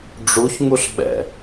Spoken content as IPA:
ɖ͡ʐuçŋuɬɓɛ̰

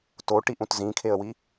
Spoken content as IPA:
toʈiʔ ũtzĩkʰeə̯wi

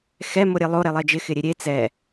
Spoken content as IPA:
xɛ moɾʲelˠo ɾelˠɛd͡ʒɪ xɪɾʲeɾʲe t͡sɛ

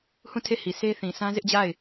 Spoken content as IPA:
hũ˦˨tʰe˦˨hi˨ sʰe˦θĩ˨ sʰã˦zɪ˦ʔd͡ʑa˦˨ɪ̯

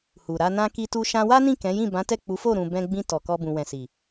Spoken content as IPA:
hu˨ɾa˧ nã˦ki˦tu˦ ʃã˧wa˦nĩ˦˨ kɛ̃˨˦jĩ˦˨ bã˨˦tɛ˦˨k͡pu˨˦fo˦˨ ɾũ˧bɛ̃˦ ɡ͡bĩ˧ tɔ˨kɔ˧bũ˨wɛ̃˨ si˨

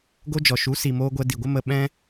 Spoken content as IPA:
ɡo˧d͡ʒɔ˨ʃu˨˦si˨ moː˧ɡʷɛ˧di˨ɡʷə˦ mə˧ɓɛ̃˦

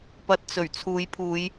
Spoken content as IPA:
pɐ˧t̚t͡sɵ˨˩ɥ t͡sʰuː˨˧jpʰuː˨˧j

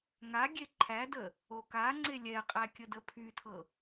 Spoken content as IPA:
ŋa ɡʲeǃʰædə | okaŋ͡ǀe lʲɛqʼæ kʲədəpʰytʰɤ

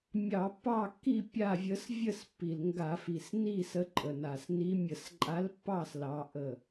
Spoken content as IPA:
mʲɑ˧˩˧pːɑ˥˨kːi˥˨ pʲa˥˨vʲə˧˥s vʲə˥˨spːi˨˩lŋɡa˧˩˧fi˨˩s ni˥˨ sə˧˥ǃʼə˨˩na˨˩s ni˧˥ mʲə˧˩˧sǃʼa˧˥lpːɑ˥˨s lɑ˧˥ʔə˥˨

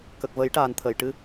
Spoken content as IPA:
kə˨˩k̚ və˨˩˦jʈaː˨˩n t̪ʰə˨˩˨j ʈɨ˧

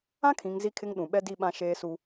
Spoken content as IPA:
ã˦kʰĩ˨ŋ zi˦kʰɪ˦ŋɗũ˨ ɓɛ˦di˦˨ɓã˦ ʃeː˦su˦

